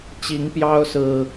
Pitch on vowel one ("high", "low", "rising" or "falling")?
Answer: rising